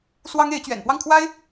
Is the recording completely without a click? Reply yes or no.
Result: yes